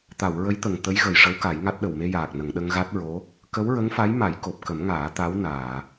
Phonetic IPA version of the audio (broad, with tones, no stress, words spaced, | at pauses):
t̪a˨˩˨w ɹə˧˥jt̪ə˨˩ŋ t̪ə˧˥jɣə˨˩jʂə˧˥w ka˨˩˦jŋa˦˥t̚ɗə˨˩w me˧jaː˨˩k̚nə˨˩˨ŋɗə˧ŋ ɣa˦˥t̚ ɹo˧˥ | kə˧˥wɹə˧˥ŋfa˧˥jma˨˩˦j ko˨˩p̚kə˨˩˦mŋaː˨˩˦ t̪a˧˥wnaː˨˩˨